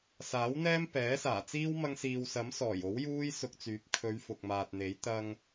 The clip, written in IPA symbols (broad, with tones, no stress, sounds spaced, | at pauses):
s aː˨˥ w n̪ ɛː˥ m p ɛː˨˥ s aː˨˩ t͡s iː˥ w m ɐ˧ ŋ s iː˨ w s ɐ˨˥ m s ɔː˨˩ j o˨˥ w j uː˥ j s ʊ˧ k̚ t͡s yː˨˥ p̚ kʰ ɵ˨˧ ɥ f ʊ˨ k̚ m aː˨ t̚ n̪ e˨˥ j t̪ ɐ˧ ŋ